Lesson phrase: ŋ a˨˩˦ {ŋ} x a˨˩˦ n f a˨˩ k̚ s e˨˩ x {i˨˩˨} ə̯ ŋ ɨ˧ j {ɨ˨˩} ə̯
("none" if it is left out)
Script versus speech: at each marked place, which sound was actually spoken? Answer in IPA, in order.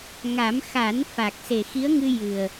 m, i˧˥, ɨ˨˩

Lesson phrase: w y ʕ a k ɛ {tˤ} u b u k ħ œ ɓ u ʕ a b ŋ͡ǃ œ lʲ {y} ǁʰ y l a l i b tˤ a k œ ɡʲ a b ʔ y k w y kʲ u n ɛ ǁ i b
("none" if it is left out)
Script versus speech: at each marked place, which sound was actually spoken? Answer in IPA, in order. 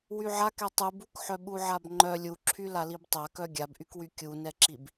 tˤ, u

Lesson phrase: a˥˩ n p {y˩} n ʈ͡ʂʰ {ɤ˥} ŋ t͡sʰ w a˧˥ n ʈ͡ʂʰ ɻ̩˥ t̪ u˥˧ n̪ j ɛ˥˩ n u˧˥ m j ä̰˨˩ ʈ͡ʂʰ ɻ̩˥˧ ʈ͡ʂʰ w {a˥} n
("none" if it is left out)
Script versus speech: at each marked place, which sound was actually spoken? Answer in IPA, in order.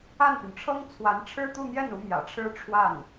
y˩, ɤ˥, a˥˩

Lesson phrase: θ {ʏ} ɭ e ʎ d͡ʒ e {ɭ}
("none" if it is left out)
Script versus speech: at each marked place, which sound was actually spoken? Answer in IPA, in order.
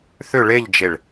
ʏ, ɭ

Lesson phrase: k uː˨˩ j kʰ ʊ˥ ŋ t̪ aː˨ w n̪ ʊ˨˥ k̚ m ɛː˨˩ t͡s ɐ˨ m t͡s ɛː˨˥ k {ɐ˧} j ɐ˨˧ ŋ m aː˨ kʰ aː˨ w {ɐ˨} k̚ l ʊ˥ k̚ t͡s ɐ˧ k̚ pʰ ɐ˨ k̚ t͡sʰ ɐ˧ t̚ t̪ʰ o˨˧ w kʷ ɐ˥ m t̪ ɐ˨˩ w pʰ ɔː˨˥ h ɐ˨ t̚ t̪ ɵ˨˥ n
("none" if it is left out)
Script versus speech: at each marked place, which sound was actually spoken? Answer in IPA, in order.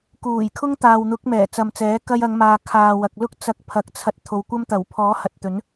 ɐ˧, ɐ˨

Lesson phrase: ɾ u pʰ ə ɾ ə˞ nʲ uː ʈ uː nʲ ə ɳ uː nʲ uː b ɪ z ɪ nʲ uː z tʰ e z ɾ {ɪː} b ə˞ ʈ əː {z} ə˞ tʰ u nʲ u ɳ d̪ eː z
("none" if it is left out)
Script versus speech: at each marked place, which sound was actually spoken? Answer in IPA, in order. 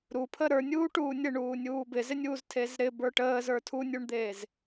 ɪ, z

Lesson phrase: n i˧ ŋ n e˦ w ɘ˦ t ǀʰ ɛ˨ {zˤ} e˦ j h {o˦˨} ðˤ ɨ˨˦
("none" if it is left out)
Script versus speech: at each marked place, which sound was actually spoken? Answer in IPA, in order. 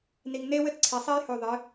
sˤ, o˦˨

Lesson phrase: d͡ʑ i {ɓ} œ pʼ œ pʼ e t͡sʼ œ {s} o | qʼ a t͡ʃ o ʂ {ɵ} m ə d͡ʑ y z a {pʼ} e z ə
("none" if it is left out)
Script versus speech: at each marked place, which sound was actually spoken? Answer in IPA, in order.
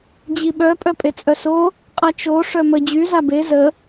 ɓ, s, œ, b

